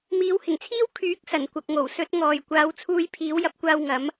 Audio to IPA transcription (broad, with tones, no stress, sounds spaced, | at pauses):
m iː˨˧ w h ɪ˨˩ ŋ t͡sʰ iː˥ w kʰ yː˨˥ k̚ s ɐ˨˩ n kʷ ɐ˨ k̚ ŋ o˨˩ w s ɵ˨˥ t̚ ŋ ɔː˨ j kʷ aː˨˧ w t͡sʰ uː˧ j pʰ iː˨˥ w j ɐ˧ p̚ kʷ aː˧ w ŋ ɐ˨˥ m